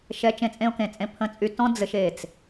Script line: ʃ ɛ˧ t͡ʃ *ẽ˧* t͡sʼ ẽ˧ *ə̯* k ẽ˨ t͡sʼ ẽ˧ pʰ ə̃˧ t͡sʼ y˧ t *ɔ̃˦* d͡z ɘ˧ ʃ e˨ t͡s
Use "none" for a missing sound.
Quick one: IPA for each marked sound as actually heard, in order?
ẽ˧, ʊ̯, ɔ̃˦

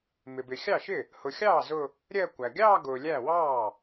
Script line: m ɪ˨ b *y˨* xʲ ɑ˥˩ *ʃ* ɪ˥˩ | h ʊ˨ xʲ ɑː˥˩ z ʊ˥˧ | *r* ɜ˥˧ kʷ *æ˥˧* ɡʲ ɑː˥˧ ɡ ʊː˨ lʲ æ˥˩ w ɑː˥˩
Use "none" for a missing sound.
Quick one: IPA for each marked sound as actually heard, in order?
ɪ˨, ʃ, ɾʲ, æ˨

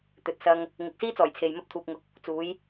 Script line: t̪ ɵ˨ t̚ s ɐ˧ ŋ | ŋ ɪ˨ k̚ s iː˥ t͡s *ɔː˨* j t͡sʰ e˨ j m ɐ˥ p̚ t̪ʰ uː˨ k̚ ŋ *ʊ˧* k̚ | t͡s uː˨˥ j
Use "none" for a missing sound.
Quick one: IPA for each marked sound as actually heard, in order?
ɔː˨˩, ʊ˨˥

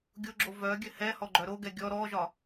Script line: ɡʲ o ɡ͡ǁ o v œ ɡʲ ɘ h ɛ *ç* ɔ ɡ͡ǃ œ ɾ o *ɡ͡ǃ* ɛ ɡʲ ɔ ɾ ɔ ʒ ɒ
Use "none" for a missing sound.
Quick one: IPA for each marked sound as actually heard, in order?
h, ɡ

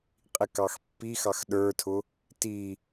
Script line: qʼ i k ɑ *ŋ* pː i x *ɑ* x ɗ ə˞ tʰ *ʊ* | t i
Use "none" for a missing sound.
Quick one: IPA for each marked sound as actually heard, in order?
x, ɑ, ʊ

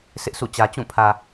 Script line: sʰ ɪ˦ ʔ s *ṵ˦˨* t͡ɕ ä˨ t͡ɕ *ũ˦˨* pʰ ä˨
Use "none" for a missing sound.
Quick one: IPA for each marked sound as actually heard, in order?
ṵ˦˨, ũ˦˨

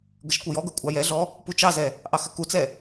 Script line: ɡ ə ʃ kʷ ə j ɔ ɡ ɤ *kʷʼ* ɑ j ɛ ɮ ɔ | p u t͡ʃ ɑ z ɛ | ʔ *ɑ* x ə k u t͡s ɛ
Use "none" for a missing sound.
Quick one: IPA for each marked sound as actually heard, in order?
kʷʼ, ɑ

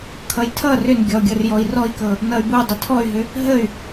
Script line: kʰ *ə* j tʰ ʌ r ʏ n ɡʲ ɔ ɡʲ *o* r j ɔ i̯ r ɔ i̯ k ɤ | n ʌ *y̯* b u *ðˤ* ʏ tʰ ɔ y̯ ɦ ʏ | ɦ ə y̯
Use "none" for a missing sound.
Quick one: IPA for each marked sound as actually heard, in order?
ʌ, ɤ, y̯, dˤ

